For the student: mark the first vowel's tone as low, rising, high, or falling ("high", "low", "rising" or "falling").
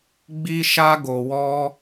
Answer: high